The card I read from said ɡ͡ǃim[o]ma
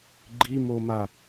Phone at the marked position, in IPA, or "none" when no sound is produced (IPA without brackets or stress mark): o